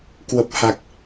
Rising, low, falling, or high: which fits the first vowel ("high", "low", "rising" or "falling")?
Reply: low